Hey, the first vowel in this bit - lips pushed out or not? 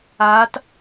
no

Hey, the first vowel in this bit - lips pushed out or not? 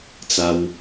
no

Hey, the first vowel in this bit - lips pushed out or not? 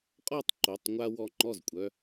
yes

